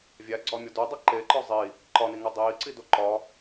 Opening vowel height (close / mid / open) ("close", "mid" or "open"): open